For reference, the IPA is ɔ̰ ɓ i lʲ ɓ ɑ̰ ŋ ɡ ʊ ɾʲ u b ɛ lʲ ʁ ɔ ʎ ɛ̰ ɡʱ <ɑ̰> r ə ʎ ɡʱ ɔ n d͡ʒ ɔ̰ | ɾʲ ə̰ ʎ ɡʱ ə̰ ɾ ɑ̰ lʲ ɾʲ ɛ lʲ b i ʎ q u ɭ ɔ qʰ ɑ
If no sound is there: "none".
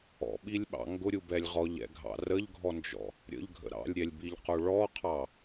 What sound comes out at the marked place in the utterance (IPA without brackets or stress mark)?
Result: ɑ̰